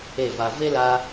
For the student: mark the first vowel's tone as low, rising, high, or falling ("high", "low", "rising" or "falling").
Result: falling